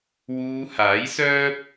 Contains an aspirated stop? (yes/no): no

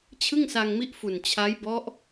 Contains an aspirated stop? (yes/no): yes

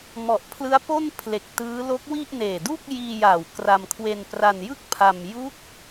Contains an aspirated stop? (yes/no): yes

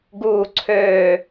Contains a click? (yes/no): yes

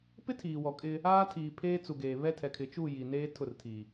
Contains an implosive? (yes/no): no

